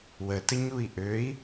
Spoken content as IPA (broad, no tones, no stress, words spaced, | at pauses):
wətəɲui̯ ʔøi̯